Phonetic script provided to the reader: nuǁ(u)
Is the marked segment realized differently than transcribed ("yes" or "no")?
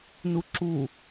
no